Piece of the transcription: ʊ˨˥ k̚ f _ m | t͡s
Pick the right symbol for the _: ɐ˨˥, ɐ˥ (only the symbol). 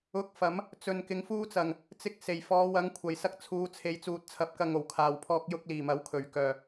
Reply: ɐ˨˥